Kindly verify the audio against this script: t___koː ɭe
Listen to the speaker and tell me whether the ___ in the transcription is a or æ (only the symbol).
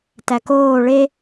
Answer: æ